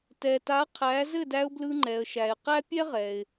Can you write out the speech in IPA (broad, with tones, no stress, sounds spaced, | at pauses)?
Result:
t ɛ˩ t a˩˥ qʰ æ˩˥ z ɘ˥˩ d æ˧ ʊ̯ b l ɯ˧ ŋ͡ǃ ɛ˩ ə̯ ʃ æ˩ ɪ̯ q æ˥ pʲ ɛ˥ ʁ ɛ˩ ɪ̯